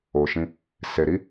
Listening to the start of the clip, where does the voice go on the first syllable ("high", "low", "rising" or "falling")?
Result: low